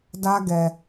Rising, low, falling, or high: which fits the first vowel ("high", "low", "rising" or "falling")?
high